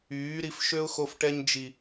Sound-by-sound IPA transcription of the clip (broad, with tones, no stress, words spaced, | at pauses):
yː˨˦ ɾi˧fʃø˦ʊ̯xo˧fʈɛ˧ɲ d͡ʒi˨